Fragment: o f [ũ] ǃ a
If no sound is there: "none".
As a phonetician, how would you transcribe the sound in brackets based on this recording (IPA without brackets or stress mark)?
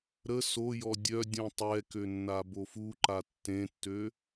u